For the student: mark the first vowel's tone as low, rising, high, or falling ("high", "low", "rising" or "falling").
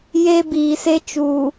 high